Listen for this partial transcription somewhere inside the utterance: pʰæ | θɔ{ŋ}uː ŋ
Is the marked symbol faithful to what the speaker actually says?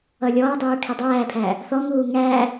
yes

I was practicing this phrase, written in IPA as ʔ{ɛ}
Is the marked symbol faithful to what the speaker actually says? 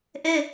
yes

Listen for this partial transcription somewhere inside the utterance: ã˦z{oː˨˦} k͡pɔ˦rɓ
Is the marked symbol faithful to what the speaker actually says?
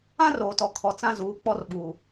no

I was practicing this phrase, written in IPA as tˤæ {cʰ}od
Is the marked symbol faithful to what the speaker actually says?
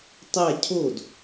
yes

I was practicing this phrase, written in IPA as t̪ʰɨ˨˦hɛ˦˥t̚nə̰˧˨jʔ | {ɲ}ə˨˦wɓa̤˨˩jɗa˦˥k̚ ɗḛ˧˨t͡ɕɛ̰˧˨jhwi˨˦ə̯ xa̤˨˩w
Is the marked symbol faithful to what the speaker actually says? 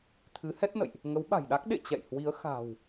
no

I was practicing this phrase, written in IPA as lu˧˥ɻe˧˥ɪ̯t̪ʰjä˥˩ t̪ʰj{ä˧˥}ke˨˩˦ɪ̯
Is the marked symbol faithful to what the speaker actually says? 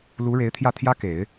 no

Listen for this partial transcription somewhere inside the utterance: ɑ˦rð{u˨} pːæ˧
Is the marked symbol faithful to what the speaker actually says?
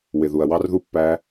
no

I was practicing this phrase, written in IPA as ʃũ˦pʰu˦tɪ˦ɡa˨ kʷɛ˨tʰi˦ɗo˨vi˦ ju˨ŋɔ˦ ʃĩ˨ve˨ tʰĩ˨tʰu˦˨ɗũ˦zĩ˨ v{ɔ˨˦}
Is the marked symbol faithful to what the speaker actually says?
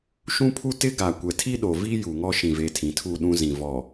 no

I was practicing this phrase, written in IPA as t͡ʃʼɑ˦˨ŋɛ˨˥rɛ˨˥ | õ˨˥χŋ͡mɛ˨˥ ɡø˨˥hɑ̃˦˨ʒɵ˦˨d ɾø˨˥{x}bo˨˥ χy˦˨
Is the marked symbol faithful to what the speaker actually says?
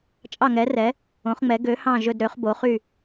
no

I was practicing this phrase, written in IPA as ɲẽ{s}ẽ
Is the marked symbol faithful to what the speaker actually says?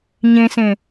yes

